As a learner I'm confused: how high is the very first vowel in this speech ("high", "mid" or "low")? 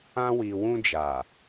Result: low